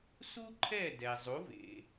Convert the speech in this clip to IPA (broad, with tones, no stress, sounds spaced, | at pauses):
s u˥ ǃʰ ɛ˥˩ d ɛ˩ zˤ u˩˥ v ḛ˩